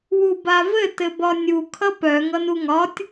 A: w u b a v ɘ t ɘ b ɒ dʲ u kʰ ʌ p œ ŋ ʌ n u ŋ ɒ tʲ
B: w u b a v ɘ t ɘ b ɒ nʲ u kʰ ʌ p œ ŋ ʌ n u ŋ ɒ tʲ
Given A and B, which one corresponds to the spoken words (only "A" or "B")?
B